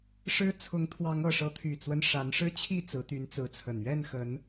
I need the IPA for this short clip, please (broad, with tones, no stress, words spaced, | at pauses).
ʂɻ̩˦ t͡sʰʊ˨˦ŋt̪ʰwɑ˨˦ŋɤ˨˩ʂɤ˨˦ t̪ʰy˨˩t͡swə˦n ʂa˨˦n ʂɻ̩˦t͡ɕʰi˥˨ t͡sɹ̩˨˦t̪y˨˦nt͡sɹ̩˨˦t͡sʰə˨˩n ɥɛ˥˨nxə˨˦n